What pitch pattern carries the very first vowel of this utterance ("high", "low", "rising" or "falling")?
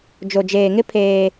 low